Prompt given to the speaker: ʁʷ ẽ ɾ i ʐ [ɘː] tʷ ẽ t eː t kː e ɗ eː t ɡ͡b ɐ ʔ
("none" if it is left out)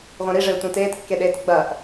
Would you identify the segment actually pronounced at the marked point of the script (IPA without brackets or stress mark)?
ɘː